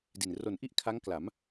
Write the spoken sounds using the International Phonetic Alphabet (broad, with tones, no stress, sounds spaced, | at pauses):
d i˨˩ n r o˩˦ n ʔ i˥˩ ʔ kʰ a˦˥ ŋ k l a˩˦ m